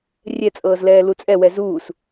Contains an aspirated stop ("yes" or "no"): no